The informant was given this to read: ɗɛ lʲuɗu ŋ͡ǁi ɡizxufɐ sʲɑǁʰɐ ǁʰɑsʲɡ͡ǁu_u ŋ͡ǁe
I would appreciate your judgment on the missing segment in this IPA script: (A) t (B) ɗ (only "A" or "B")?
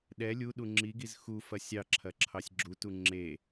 A